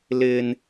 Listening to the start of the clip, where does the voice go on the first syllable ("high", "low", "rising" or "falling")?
high